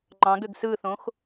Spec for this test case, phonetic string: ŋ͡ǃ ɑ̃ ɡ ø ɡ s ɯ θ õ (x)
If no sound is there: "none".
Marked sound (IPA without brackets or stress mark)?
x